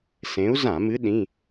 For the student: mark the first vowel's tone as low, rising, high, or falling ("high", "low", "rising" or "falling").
rising